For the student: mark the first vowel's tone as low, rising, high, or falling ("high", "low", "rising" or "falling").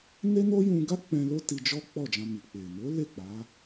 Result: high